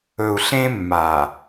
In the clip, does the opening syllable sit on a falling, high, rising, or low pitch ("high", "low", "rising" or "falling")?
low